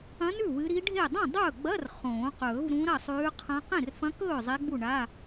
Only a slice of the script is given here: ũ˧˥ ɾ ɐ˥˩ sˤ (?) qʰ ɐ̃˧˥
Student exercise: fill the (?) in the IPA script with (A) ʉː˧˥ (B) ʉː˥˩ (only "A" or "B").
A